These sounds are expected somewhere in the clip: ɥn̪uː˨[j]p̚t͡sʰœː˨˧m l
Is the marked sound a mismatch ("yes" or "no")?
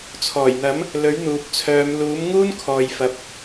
yes